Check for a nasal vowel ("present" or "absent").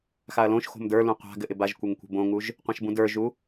present